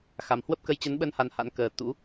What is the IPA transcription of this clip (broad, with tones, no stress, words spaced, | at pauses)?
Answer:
xa˨˩mhwə˦˥p̚kə˧j t͡ɕə˨˦nɓə˧n ha˧nha̰˧˥nkəː˨˩ t̪ṵ˧˥